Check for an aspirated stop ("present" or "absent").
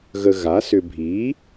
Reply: absent